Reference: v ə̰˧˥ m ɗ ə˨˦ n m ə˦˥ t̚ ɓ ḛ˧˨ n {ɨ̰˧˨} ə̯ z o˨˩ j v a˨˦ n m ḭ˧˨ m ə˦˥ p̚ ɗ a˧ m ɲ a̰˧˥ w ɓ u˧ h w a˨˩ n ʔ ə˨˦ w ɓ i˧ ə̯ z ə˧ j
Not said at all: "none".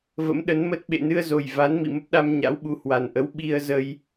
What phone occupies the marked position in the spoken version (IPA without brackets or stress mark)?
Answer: ɨ˧